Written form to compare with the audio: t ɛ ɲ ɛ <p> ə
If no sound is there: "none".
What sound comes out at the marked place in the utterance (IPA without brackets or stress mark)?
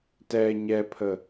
pʰ